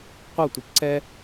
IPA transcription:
qʷʌtʷəp ǀɛ

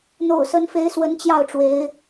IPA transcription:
n̪o̰˨˩ʊ̯sə˧˥nfe˧˥ɪ̯ swə˧˥nt͡ɕjɑ˥˩ʊ̯ʈ͡ʂwe˧˥ɪ̯

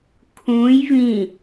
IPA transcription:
kʰũj vĩ

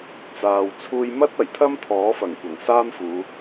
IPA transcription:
t͡saː˨w t͡sʰuː˧jmɐ˥t̚ ɐ˨˩jt̪ʰɐ˥m t̪ʰɔː˨˥fɐ˨˩ŋkʷɐ˨˩ŋ saː˥mfuː˨˧

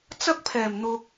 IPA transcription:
t͡sɐ˥k̚pʰɛː˨˩mn̪ʊ˨k̚

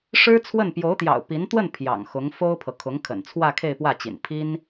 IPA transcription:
ʂɻ̩˥t͡sʰwə˥˩n pjo˧˥ʊ̯t̪jɑ̰˨˩ʊ̯ pi˧˥n t̪wə˥˩n pʰjɑ̰˨˩ŋxʊ˧˥ŋ fo˥ʊ̯pʰɤ˨ kʰʊ˧˥ŋ kʰə̰˨˩nt͡sʰwä˥˧ kʰe˥˧ɪ̯pwä˥˩t͡ɕḭ˨˩n pʰi˥n

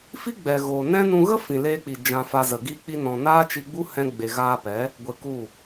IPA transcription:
fi˦ ɡ͡bɛ˨ɣoː˨nɛ̃˦ nũ˧ɣə˦ fĩ˨leː˧k͡pi˨ d͡ʒã˧fa˧zə˨ ɡiː˧k͡pi˧nɔ̃˨ naː˦t͡ʃi˧ɡ͡bu˦ hɛ̃˧ ɡ͡be˨ɣaː˧pɛ˨˦ | ɡʷe˧ku˦˨

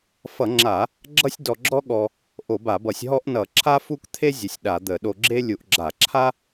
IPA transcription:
fʌ˧˩˧ŋ͡ǁa˧˩˧ | ɡ͡ǁʌ˥sʲdɔ˧ɡ͡ǁɔ˥ɠɔ˧ | ʔo˧˩˧ba˧˩˧bʌ˧˩˧sʲ ɦɔ˥ʔ nʌ˧˩˧ǁʰa˥ fu˥k t̪ʰe˥ zʲə˧sʲɗa˧˩˧d̪ə˧˩˧ ɗo˧ɡ͡ǁe˥ lʲu˧˩˧ʔɡ͡ǁa˧˩˧ǁʰa˥

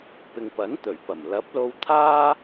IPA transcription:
pɪ˨ŋpɐ˨˥nt̪ɵ˨˩ɥpɐ˨˩m lɐ˨˥p̚lo˧wt̪ʰaː˥

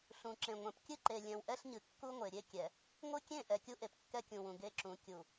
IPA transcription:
ɬũ˨ǁẽ˨ŋʷɛ̃˨p kʲɨ˦ǃe˨ lʲɛ̃˨wʔɛ˦ɬɲɨ˨ kːu˦ŋʷe˨ɾʲe˦ kʲɛ˨ | ŋʷɨ˦kʲẽ˦˨ ʔɛ˨kʲu˦ʔe˨p kːɛ˦kʲũ˨wũ˨ ɡe˦ǁũ˨˦ kʲu˨

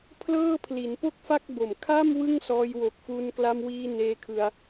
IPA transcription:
pʰlɤː˥˩pʰli˩˦n po˥˩k̚fa˥˩k̚bo˨˩m kʰa˥˩m wɯ˥˩ŋsɔː˧jwo˨˩k̚fu˧n kla˧mwiː˧ neː˧kʰɯ˧a̯

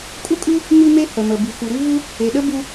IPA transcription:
kʼu˥kʼʉ˥ | mʉ˥me˥ hə˩mə˩ bʉ˩xu˩ɾʉ˥vu˥ | e˩ɗə˥ bu˥

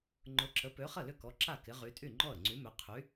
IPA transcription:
ŋ͡ǃʊ˨˥ǁə˨˥ pø˨˥χə˥˩lʏ˥˩ kɔ˨˥ǁa˥˩ kɪ˨˥ʁy˨˥ tʼy˥˩ŋ͡ǃɔ˥˩ə̯ŋ͡ǀy˨˥mø˨˥ qʰy˨˥

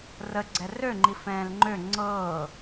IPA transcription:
rəɡ͡ǀɛ røŋ͡ǃifɛ̃ːl ŋ͡ǃø ŋ͡ǀɤː

